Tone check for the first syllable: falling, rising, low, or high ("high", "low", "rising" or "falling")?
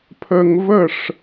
high